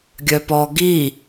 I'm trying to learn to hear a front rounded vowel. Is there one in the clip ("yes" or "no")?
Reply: yes